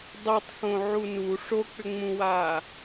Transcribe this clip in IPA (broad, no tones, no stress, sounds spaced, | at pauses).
dˤ i tˤ x õ ʕ u n u ʂ o k͡p ʏ ŋ͡m ũ w aː